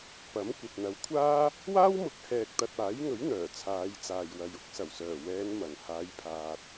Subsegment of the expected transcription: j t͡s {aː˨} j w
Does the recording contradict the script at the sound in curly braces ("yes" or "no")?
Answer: no